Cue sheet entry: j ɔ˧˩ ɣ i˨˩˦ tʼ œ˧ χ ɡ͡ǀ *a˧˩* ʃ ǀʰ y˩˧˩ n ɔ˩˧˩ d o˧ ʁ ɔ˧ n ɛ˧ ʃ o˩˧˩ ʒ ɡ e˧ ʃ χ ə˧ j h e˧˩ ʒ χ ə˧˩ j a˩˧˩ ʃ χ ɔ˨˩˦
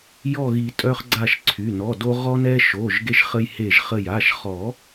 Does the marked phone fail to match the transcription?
no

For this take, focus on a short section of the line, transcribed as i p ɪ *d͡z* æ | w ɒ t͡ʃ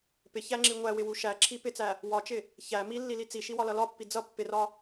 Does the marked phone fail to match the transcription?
yes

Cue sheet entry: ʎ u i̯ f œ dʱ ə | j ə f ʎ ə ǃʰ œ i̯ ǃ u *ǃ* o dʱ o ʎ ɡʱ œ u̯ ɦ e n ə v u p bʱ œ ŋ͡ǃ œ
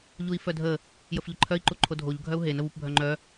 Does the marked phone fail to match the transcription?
yes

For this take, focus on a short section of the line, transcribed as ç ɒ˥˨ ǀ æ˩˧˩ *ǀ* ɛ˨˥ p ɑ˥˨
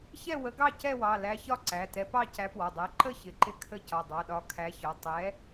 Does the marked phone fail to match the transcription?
yes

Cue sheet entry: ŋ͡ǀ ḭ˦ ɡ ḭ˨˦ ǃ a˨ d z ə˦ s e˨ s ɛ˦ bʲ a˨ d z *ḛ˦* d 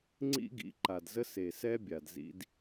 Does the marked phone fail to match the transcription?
yes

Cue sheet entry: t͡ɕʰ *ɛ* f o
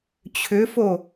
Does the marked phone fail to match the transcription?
yes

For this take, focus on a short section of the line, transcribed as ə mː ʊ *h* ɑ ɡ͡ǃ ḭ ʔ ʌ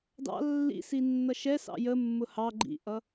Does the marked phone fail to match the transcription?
no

